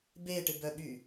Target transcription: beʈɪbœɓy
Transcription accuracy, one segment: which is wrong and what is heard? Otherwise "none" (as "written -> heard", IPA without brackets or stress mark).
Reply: none